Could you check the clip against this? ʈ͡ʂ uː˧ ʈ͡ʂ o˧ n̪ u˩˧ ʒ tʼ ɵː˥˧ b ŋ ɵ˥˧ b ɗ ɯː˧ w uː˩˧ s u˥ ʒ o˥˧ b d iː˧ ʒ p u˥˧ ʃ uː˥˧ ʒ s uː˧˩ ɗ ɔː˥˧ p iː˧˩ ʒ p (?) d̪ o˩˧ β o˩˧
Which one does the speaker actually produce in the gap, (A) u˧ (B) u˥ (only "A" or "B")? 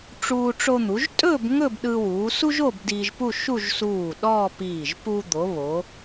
A